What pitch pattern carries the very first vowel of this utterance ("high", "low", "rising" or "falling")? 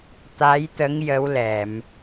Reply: rising